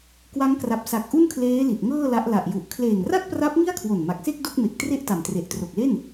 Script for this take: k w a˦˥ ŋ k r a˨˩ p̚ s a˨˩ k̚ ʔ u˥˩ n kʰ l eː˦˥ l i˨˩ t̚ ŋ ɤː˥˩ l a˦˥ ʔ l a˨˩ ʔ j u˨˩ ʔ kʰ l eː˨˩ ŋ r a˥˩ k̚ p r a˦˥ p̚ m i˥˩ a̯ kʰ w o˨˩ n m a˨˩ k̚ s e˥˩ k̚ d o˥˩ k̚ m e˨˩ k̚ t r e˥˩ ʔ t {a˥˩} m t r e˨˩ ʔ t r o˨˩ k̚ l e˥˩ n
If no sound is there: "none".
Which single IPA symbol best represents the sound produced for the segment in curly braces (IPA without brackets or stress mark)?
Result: a˨˩